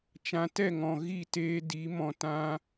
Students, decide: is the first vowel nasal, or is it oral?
nasal